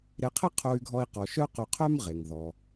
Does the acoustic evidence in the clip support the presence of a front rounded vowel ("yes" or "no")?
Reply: yes